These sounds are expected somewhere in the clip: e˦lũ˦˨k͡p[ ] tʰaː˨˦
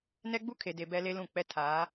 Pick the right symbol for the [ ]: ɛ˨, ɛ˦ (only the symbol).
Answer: ɛ˦